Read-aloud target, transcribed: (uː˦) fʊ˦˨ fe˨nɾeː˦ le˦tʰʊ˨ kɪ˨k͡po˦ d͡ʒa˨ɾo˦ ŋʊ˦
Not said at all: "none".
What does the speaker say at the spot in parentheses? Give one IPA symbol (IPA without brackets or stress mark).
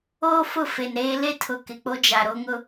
oː˦